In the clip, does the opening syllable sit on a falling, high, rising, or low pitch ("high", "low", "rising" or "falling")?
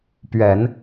low